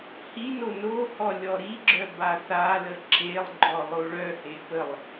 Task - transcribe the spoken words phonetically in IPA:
h i n o n o h ɔ lʲ ɔ ɾ i ɡ͡ǁ œ b a θ a l ə ǁ e lˠ ɡ͡ǃ ɔ lˠ o ɭ œ h e p ə lˠ

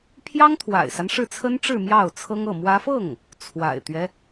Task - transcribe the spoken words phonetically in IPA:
pʰ j ɑ˥ ŋ t̪ʰ w a̰˨˩ ɪ̯ s a˦ n ʂ ɻ̩˥˩ t͡sʰ ə˥ n ʈ͡ʂ ɻ̩˥˧ m j ɑ˥˩ ʊ̯ t͡sʰ ɤ˥ ŋ ɤ˥˩ m w ä˥ f ɤ˥˩ ŋ | t͡sʰ w a̰˨˩ ɪ̯ t̪ ɥ ɛ˦

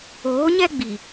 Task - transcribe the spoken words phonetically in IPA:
oː˨˦ ɲ ɛ˦ ɡ͡b i˨

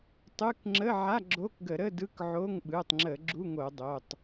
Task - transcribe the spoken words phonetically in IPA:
tˤ ɯ˧˥˧ k ŋ͡ǁ ə˧˥˧ ʕ a˧˥˧ ɡ͡ǁ o˧˥˧ k ɡ ə˧˩˧ ɾ ə˧˥˧ d ɯ˧˥˧ k ʕ o˧˥˧ ŋ ɓ ɯ˩˧˩ tˤ ŋ͡ǁ ə˧˩˧ ɡ͡ǁ u˧˥˧ ŋ o˧˩˧ dˤ o˩˧˩ tˤ

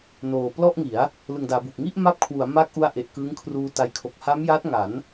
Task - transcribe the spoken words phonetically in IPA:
n oː˨˩ p l ɔ˥˩ ʔ ŋ i˩˦ a̯ | l ɯ˨˩ ŋ d aː˩˦ b u˨˩ k̚ ŋ i˥˩ ʔ m a˦˥ p̚ kʰ w u˩˦ a̯ m a˦˥ k̚ ʔ u˧ a̯ ʔ e˨˩ ʔ k ɯ˦˥ ŋ kʰ r uː˧ t a˧ j kʰ o˨˩ k̚ h a˦˥ m j a˦˥ t̚ ŋ a˩˦ n

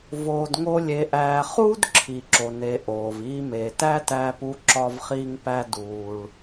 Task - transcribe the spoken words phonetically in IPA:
v oː˧ d ŋ o˥ lʲ e˧ ʔ æː˧ χ uː˥ d ǁʰ i˩ ǁ o˩ n e˩ ʔ oː˩ v iː˧ m eː˩ t æ˥ t æː˧ p u˧ ǁ ɒ˧ v χ iː˧ ŋ p æ˧ d uː˩ ɭ

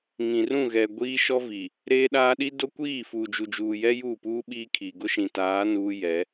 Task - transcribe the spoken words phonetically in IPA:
ŋ ĩ˨ r ũ˦˨ ɣ ɛ˨ ɡʷ iː˦ ʃ ɔ˦ v i˨ | ɾ eː˦ ɗ aː˦ ɗ i˦ d o˦ kʷ iː˦˨ f uː˨ d͡ʒ u˨ d͡ʒ uː˨ j ɛ˦ j uː˦˨ p uː˦ ɓ iː˦ kʰ iː˨ ɡ ʊ˦ ʃ ĩ˨ t aː˨˦ n uː˦ j ɛ˨˦

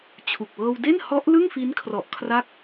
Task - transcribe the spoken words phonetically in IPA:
t͡ɕʰ u˨˩ k̚ w ɤː˧ w d e˥˩ n h ɔ˦˥ ʔ l ɯ˥˩ ŋ f i˦˥ n kʰ r ɔ˨˩ ʔ kʰ r a˦˥ k̚

